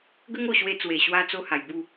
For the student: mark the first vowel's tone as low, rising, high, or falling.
high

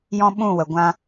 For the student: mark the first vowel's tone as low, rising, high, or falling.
high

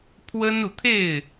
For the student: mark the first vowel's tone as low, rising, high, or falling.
high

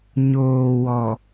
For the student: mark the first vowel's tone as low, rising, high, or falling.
low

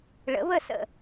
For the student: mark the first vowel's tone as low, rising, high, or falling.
rising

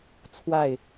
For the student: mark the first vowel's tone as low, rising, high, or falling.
falling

